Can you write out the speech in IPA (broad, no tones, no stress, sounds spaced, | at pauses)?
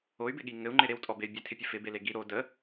o y̯ b ɪ ɠ i ŋ ɘ u̯ ŋ͡ǃ ɪ ɾ e w tʼ ɔ b e y̯ bʲ e tʰ ɪ pʲ ə f ɪ b e l e ɡ i ɾ o d ə